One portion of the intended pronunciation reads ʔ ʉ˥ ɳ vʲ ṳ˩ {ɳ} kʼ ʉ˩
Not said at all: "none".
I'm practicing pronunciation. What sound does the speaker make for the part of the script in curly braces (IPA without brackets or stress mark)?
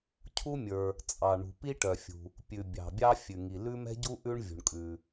ɳ